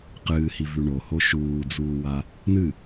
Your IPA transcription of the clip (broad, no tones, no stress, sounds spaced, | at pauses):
q ɨː h i v ʉ ɳ o h o ʃ uː d͡z uː w a | n ɨ